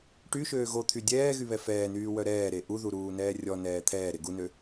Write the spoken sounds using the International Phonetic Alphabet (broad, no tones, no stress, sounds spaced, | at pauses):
ʈ y ʃ øː ɣ o t̪ʰ y dʲ ɛː ɣ y β ɛ f ɛː n yː w œ ɾ ɛː ɾ e ʔ u ð u ɾ uː n ɛː rʲ ɔ n ɛː t̪ʰ ɛː ɾ e ɡ u n ø